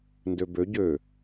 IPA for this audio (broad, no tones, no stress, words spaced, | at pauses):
ndøbø ɟø